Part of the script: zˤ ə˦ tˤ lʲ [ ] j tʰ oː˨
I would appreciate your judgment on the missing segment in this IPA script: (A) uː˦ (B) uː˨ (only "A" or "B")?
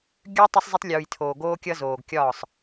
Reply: B